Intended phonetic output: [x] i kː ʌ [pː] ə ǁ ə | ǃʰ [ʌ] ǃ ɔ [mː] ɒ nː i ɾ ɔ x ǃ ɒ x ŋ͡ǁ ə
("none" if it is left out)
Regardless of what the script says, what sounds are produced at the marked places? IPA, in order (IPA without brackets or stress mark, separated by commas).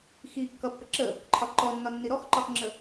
x, pː, ɒ, nː